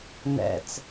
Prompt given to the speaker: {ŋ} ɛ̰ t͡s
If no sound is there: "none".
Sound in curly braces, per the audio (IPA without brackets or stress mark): n